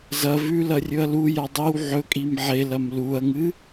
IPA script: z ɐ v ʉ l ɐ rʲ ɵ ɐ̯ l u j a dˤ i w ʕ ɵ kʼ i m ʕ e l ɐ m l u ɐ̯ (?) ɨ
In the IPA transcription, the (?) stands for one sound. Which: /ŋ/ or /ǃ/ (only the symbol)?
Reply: ŋ